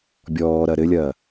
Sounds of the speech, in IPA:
bʲɔːɾɐ ɾɘlʲɐː

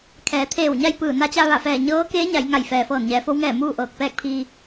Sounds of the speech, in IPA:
kʰɛː˩˧t̪ʰeː˧˩wɲa˥˨jpɯː˧˩ na˧t͡ɕa˧ ʋa˧˩fɛː˧˩ ɲɤː˧˥keː˧˥ ɲa˩˧jŋa˧˩jfɛː˩ fɤː˧˩nɲɛː˩˧fo˧˥wŋɛː˧˩ muː˥˨ʔɤː˧˩k̚ pɛː˥˨k̚pʰiː˧

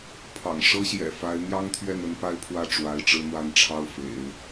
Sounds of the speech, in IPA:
pʰɑ̰˨˩ŋʂɤ˥ɕjɛ̰˨˩fa˧˥ɪ̯ n̪jɑ˥ŋt̪ʰɥɛ˥˩n ə˥npa˥ɪ̯pʰwä˥˩ ʈ͡ʂwa˧˥ɪ̯ʈ͡ʂɻ̩˥n̪wa˥˧nʈ͡ʂʰɑ˥˩ʊ̯ fḛ˨˩˦ɪ̯

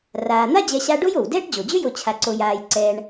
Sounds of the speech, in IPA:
raː˨n̪a˥ d͡ʑɛ˦ɕa˥ ɖo˥jo˩w dɛː˥ʈd͡ʑo˩d͡ʑø˥jo˨ t͡ɕʰa˨ǀo˨jaː˨jǀɛː˨ɳ

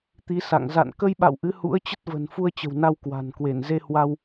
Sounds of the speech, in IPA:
t̪i˨˦sa̰˧˨ŋ za̰˧˨n kə˧jɓa̰˧˨w ʔɨ˨˦hṵ˧˥ə̯t͡ɕə˦˥t̚və̤˨˩n fu˧ə̯t͡ɕə̤˨˩wna˧w kwa̤˨˩nkwe˧˩n ze˧hwa˧w

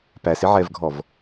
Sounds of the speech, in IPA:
pæsɪʕɛvɡʱɔv

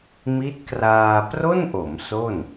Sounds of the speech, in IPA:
mi˦˥t̚kraː˧ pro˥˩nʔo˩˦m so˥˩n

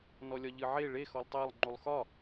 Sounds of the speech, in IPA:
nɔlʲɒʎɨʕe ɭe xɔlˠtˤɜlˠ ŋ͡ǃulˠxɒ

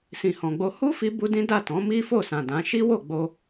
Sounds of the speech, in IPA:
sĩ˨hɔ̃˨ɡ͡bo˧ hu˦ fi˦bu˦ dĩ˦da˦˨ tɔ̃˨˦ mi˦fo˦˨sã˨ dã˨˦ ʃi˦wo˦˨ɡ͡bo˧

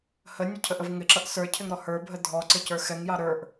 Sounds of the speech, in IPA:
hənʲə cʰəʔəvŋɪǁʌʔ sə˞cʰɪŋ ɾɔhə˞bʱə dʱɔǀɪ cə˞xɛŋjɑ ɾə˞ʔ

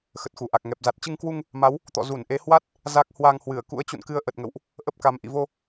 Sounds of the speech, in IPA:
xə˨˩t̚xu˧˩ʔa˨˩k̚ ŋɛ˨˩p̚za˨˩t̚ t͡ɕɨ˧ŋkwu˧ŋ | ma˨˦w | t̪ɔ̰˧˨ zu˧˩nʔe˨˦hwa˦˥t̚ | za˦˥k̚ hwa˧ŋhwɨ˧˩ə̯ kṵ˧˥ə̯t͡ɕṵ˧˨nkɨ˨˦ə̯ ʔə˨˩t̚ŋə̰˧˨wʔ | ʔə˦˥p̚ka˨˦m ʔḭ˧˨vo˧

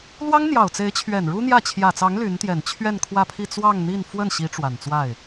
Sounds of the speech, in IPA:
lwɑ˥ŋn̪jɑ˨˩ʊ̯t͡se˧˥ɪ̯t͡ɕʰɥɛ˨˩n ɻu˥n̪jä˥˩ t͡ɕʰjä˨˩t͡sɑ˧˥ŋ ly˧˥nt̪jɛ˨˩n t͡ɕʰɥɛ˥˧nkʰwä˥˧pʰi˥˧ t͡swɑ˥˧ŋn̪i˥˧n fwə˥˩nɕi˧˥ ʈ͡ʂwa˨˩nt͡swa˥˩ɪ̯

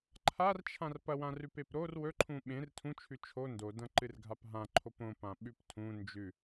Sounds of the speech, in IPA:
ǃʰart͡ʃʰãr pɐwãrʉpep ɾor wɵǃʰũ ɓẽr tʰũt͡ʃʰʉ t͡ʃʰo ndodɐ̃ǃɨrɡʱap ɦãǃʰop õpãɓʉp tʰũ nd͡ʒʉ

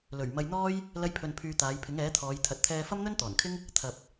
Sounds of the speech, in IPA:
lɵ˨˩ɥmɐ˧jn̪ɔː˥j | lɐ˧jpʰɵ˨npʰyː˨ t̪aː˨˧jpʰɪ˨˥ŋɛː˨˥t̪ʰɔː˨˧j t̪ʰɐ˨t̚t̪ʰɛː˧ fɐ˥mn̪ɵ˥nt̪ɔː˨˩nkʰɪ˥ŋ | t̪ʰɐ˨p̚

